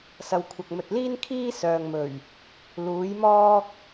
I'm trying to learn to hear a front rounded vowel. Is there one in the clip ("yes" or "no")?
yes